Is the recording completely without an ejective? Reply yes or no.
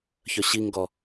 yes